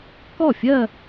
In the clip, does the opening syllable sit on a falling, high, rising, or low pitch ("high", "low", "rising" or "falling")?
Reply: falling